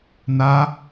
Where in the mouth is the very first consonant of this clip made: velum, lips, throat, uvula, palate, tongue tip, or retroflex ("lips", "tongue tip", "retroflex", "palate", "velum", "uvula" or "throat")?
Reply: tongue tip